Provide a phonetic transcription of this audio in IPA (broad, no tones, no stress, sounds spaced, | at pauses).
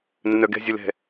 nː œ ɡ ɛ̤ zʲ ʉ l ɛ̤